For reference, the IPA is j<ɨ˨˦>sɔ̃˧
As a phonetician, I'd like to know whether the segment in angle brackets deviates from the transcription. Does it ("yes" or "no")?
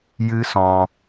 yes